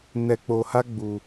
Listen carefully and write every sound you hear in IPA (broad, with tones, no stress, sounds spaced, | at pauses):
n ɛ˧ k͡p o˧ h a˦ ɡ͡b u˧